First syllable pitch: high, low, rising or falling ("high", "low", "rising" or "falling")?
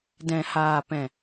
low